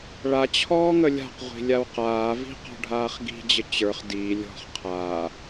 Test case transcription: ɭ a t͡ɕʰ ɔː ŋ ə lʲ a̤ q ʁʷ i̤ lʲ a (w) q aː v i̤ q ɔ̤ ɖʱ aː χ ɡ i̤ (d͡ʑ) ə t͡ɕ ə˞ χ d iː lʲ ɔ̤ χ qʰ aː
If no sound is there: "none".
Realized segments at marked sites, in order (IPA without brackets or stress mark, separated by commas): w, d͡ʑ